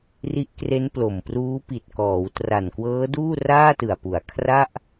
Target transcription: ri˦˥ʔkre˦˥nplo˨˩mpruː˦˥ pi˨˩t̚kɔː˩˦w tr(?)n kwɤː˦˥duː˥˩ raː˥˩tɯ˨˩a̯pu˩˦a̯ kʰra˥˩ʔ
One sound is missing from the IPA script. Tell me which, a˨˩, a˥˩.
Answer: a˨˩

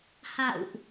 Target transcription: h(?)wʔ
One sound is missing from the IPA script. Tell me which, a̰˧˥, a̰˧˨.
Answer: a̰˧˨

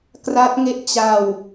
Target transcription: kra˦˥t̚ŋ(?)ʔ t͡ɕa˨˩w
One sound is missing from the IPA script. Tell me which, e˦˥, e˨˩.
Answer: e˦˥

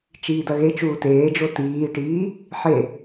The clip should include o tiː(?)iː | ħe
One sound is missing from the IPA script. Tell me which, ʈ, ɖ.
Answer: ʈ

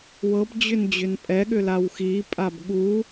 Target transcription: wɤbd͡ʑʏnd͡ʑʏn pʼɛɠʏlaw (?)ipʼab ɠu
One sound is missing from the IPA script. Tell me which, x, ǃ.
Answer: x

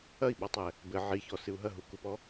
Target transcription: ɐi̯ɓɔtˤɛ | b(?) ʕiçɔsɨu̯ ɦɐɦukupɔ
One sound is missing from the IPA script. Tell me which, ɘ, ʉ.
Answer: ɘ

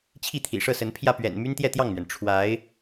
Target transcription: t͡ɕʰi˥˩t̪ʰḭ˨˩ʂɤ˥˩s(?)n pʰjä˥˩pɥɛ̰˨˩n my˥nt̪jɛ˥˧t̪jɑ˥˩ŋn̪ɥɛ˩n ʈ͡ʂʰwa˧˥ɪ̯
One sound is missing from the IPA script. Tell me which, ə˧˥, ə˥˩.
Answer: ə˧˥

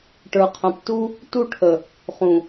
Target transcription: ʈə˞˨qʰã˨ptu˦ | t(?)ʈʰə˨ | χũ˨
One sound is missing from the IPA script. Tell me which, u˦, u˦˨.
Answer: u˦˨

